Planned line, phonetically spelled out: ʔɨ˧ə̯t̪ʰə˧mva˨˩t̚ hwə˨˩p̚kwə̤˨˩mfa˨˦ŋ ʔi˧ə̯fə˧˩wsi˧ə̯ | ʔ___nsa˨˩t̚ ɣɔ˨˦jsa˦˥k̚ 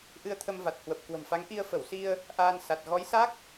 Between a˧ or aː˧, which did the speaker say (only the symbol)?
aː˧